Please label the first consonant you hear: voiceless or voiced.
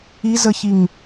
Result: voiced